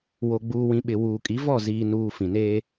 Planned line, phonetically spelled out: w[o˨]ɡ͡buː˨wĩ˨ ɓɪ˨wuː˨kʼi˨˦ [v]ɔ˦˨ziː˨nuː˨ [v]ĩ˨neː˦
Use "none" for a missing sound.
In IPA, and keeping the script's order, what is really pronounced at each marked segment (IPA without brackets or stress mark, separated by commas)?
o˨, v, f